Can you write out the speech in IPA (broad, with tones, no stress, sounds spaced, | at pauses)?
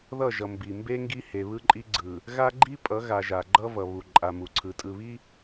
ð ʌ˦˨ ʒ ʌ˨ m b i˨ m b e˦ ŋ ɡ i˦ h e˨ β ɯ˦ ǃʼ i˦ ɡ͡ǀ ɯ˨ | ɣ a˦ ɡ͡ǃ i˦ pʼ ʌ˨˦ ɣ a˨ ʒ a˨ ɡ͡ǃ ʌ˦ v ʌ˨ β u˨ ǃʼ a˨ m u˨ ǀʰ ɯ˨ tʼ ɯ˨ β i˦